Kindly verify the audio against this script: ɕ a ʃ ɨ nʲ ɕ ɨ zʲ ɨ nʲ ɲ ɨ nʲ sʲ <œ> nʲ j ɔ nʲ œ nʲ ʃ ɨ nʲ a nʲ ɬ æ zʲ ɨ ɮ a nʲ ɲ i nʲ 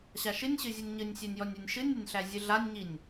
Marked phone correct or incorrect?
incorrect